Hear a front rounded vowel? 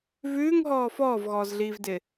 no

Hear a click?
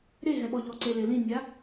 yes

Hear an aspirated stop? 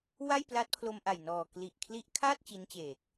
yes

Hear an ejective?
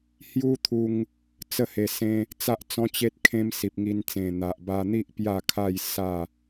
no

